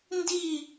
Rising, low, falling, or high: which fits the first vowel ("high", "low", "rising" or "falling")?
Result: falling